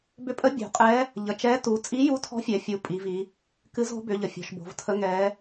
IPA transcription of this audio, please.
b ʏ˧˥ pʼ ə˧˥ bʲ o̤˩˧ qʼ ɛ˧˥ | ʎ ə˩˧ t͡ʃ ɛ˧˥ t u˩˧ t͡sʼ i˧˥ j u˧˥ tʰ ɔ̤˧˥ fʲ ɛ˩˧ fʲ u˩˧ pʼ i˩˧ v i˩˧ | k ɨ˧˥ z o̤˧˥ b ʏ˩˧ ʎ ə˩˧ fʲ ɔ̤˩˧ ʃ b o̤˩˧ v tʰ ə˧˥ ŋ ɛ˧˥

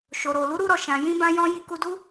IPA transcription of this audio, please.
ʃ o˨ ɾ o˨ l u˨˦ ɾ u˧ ɾ ɔ˨ ʃ ã˨ j ĩ˧ b ã˧ j ɔ̃˧ j i˧ k u˧ d u˦

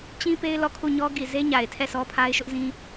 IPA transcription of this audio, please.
t͡ɕ ĩ˦ p e˦ ɪ̯ l ɔ˦˨ kʰ u˦˨ ɲ ɔ˦ ɡ i˨ z e˦ ɲ a˨ ɪ̯ tʰ ɛ˦˨ s ɔ˦ pʰ a˦ ɪ̯ ʃ ʊ˦ ʔ z ĩ˦

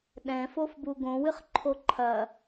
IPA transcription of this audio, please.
ɗ ɛ̃ f o f b u ɡ õ w ɨ χ ǃʰ o ǃʰ ɐ

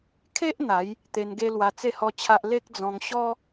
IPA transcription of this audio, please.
kʰ e˦ ʔ n̪ a˨˦ j | t̪ e˧ n ɡ e˦ l w a˧ t͡s e˥˧ h ɔ˦ t͡ɕʰ a˦ ʔ l e˦ k̚ d͡z ɔ̃˧ ŋ ɕ ɔ˦

